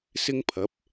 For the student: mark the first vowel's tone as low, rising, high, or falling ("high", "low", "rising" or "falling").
high